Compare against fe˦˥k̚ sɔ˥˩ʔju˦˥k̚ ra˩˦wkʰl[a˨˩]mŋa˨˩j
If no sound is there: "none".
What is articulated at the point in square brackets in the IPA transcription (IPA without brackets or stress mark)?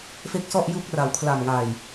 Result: a˨˩